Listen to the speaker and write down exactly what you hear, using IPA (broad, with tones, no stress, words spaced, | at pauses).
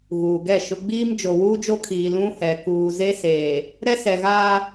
ɣuː˨ɡɛ˦˨ʃʊ˦ ɡ͡biː˦m d͡ʒo˨wuː˦d͡ʒo˦kʰiː˨ lũ˦hɛ˨ kuː˨ze˦seː˨ | ɾɛ˦sɛ˨ɣaː˦